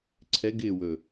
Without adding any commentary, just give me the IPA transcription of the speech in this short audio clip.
ǀʰ ɛ ɡ ɪː w ɵ

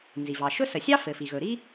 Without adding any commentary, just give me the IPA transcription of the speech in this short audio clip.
n z i˩ v ɑ˩ ʃ ɵ˥ s ə˩ sʲ ɑ˥ f ɘ˩ f i˩ ɣ ɵ˩ ɾ i˥

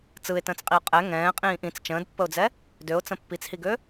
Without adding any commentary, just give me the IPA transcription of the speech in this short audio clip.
t͡s ɯ ɪ̯ t ə̃ː t͡s qʼ i ʊ̯ qʼ ɛ ŋ ɛ̃ː qʼ ĩː ʔ ĩ t͡s t͡ʃ ə̃ː d pː ə ʊ̯ d͡z ɛ | d ø ʊ̯ t͡s ə̃ pː i t͡s h i ɡ ø

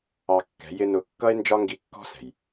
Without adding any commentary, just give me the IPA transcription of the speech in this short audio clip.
ɑ˧ kː ɛ̤˨˦ j ɪ˦ n ʊ˧ kː ʌ˦ e̯ n d͡ʒ ɒ˦ ŋ ɡ i˧ kː ɔ̤˦ s ɛ̤˨ j

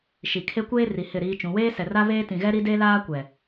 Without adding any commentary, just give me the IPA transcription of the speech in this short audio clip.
ʃ i˨ kʰ e˦ kʷ eː˦ r i˨ h ɪ˦˨ ɾ iː˦ t͡ʃ ũ˨˦ w eː˦ s ɛ˨ r a˦ β eː˦ t ĩ˨ ɣ ɛ˦ ɾ i˦ d e˦ l aː˦ kʷ ɛ˨

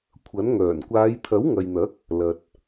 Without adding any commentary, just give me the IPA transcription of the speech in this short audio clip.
kʷʰ ɐ˨˥ n ŋ œː˨˩ n kʷ aː˨˧ j t̪ʰ ɐ˨˥ w ŋ ɐ˨ j n̪ ɐ˨˥ k̚ | l ɐ˨ t̚

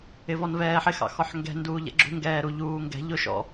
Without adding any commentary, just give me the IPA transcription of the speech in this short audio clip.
ɪ v ɔ n v ɛː ħ ɪ x ɑ̰ x ɔ ħ ŋ ɡ ɛ̤ n d uː ʎ ɛ̰ ɡ͡ǁ ṳ ŋ ɡ ɛː ɾ u ʎ uː ŋ ɡ ɛ̤ ʎ ʊ ʃ ɔ̰

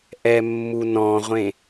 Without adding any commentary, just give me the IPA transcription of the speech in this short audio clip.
ʔ ɛ mː u n ɔ̃ ʁʷ ẽ

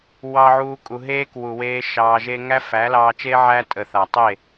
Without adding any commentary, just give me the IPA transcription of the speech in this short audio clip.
w ɑ˦ ʕ uː˦ kʼ u˧ ɦ eː˦ k w u˨ w eː˧ ʃ ɑː˧ ʒ e˦ ŋ æ˦ f æ˨˦ l ɑː˧ t͡ʃ eː˦ ʕ æ˧ tʼ ə˨ θ a˨ tˤ e˦˨

